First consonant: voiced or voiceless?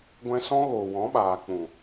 voiced